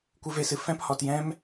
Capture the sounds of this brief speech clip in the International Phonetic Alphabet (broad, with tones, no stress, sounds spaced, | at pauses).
kʷ ɨ˦ v e˦ s ɨ˧ f ɛ̃˦ p h ɔ˧ t j ɛ̃˦ m